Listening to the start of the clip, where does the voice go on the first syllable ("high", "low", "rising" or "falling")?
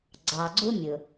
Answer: low